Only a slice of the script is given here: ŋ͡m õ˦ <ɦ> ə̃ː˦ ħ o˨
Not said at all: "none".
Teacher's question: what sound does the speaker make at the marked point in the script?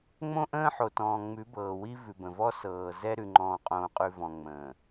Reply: ʔ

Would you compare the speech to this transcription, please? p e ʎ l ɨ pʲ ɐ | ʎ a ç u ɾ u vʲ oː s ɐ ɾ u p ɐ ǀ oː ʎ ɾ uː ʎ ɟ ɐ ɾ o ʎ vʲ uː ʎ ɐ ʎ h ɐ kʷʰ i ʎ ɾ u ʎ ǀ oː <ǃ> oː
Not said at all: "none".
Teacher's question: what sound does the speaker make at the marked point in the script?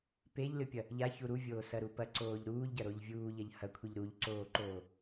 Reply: ǃ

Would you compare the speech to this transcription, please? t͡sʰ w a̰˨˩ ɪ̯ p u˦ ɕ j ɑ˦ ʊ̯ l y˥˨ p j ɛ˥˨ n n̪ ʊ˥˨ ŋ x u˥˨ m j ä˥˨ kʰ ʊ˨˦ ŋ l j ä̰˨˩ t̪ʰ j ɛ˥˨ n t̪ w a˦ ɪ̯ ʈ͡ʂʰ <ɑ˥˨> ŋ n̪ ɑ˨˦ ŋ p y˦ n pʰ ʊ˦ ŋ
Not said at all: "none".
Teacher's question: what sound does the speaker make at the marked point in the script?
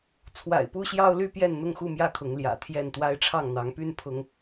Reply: ɑ˥˨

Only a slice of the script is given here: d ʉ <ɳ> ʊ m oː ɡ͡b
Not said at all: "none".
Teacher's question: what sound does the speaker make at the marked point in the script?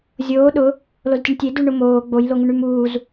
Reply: ɳ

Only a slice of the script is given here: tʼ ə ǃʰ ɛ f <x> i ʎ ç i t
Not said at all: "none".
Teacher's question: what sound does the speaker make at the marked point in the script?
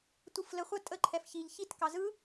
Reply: ç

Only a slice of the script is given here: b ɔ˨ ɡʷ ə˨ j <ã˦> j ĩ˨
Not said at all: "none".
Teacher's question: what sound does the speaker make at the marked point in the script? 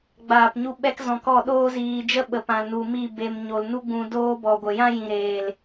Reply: ã˦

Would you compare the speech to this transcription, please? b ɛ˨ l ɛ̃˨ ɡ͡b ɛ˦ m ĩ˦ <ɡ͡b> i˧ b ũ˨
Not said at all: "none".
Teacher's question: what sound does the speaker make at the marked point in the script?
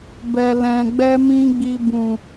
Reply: ɡ͡b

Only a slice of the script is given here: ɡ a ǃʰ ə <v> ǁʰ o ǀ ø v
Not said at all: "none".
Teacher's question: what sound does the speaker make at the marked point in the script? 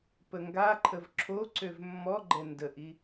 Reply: v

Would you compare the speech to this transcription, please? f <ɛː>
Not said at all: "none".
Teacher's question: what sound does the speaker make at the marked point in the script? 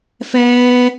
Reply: ɛː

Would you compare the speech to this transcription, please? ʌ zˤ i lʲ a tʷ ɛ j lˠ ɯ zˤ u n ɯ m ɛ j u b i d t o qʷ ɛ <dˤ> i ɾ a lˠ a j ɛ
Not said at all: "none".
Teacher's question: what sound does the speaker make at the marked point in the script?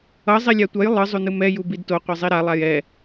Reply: zˤ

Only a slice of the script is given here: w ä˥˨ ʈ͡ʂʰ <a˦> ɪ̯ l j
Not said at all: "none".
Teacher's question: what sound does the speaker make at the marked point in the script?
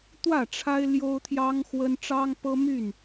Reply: a˦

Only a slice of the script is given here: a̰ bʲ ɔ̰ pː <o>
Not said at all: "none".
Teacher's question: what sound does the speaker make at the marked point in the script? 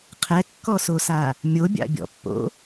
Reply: o̰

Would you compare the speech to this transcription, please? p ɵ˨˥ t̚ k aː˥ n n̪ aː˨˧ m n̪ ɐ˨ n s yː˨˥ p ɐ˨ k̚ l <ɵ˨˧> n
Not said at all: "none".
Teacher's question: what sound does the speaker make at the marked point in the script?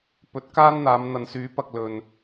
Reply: ɵ˨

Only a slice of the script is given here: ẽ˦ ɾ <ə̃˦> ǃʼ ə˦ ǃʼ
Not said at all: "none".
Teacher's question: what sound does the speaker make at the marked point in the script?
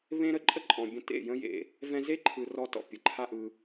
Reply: ə˦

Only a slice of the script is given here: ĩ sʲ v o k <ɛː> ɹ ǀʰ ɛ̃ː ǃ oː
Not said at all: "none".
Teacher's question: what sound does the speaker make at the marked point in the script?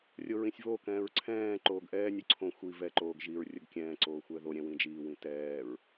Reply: ɛ̃ː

